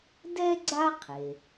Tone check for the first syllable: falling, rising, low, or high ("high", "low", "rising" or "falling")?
high